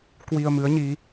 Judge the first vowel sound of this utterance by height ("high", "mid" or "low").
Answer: high